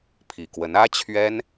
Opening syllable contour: low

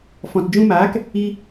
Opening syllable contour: low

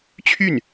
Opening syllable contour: falling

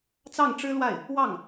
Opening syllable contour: falling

